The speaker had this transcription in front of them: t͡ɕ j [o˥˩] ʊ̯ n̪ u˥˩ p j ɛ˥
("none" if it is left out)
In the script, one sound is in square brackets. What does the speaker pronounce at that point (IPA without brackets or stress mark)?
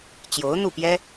o˧˥